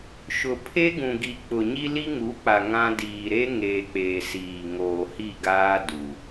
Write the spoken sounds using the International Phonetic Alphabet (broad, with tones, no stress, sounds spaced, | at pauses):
ʃ ʊ˨ pʰ e˦ ɡ ũ˨ ɡ i˨ k͡p ʊ˨ ɲ i˦ l i˦ ŋ u˨˦ k͡p a˨ ŋ ã˦ d iː˨ ɾ e˦ ŋ eː˨ k͡p eː˨ s iː˨ ŋ oː˨ h i˦˨ ɡ aː˦ d u˨